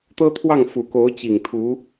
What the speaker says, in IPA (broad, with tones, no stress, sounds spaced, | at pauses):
t̪ ɤ˥ t̪ʰ w ɑ˥˩ ŋ f u˨˩ k o˧˥ ʊ̯ t͡ɕ i˨˩ ŋ t̪ʰ u˧˥